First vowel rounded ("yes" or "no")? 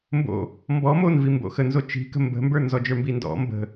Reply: yes